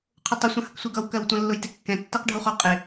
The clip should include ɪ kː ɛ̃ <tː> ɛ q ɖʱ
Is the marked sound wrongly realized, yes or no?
no